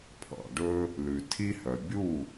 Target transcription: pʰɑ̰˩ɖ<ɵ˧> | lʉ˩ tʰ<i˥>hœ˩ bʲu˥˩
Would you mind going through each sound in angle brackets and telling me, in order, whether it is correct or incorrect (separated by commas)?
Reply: correct, correct